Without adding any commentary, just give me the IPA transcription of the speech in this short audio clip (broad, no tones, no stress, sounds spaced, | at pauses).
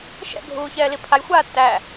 ʃ ɛ̰ ɡʱ uː ç ɛː l i pʰ a j xʷ aː tː æ